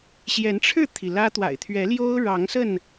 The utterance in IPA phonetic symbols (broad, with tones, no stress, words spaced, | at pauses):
ɕjɛ˨˦nʈ͡ʂʰɻ̩˥˨t̪ʰi˩ lä˦t̪wa̰˨˩ɪ̯ t̪ʰɥɛ˨˦ ljo˦ʊ̯ ɻɑ˨˦ŋsə˥˨n